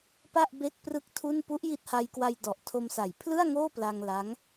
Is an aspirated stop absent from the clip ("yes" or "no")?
no